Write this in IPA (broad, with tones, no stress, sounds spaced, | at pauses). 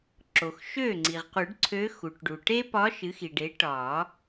ǁ o˩ x ʃ ø˥˩ ŋ͡ǀ i˩ ʁ q u˨˩˦ ɖ ǀʰ ø˧˥ x u˩ ʈ ɖ u˩ ʈ e˥ p ɒ˧˥ ʃ ɨ˩˥ x i˩ ɖ e˩˥ ʈ ɒ˨˩˦